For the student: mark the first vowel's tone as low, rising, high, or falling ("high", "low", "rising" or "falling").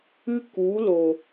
high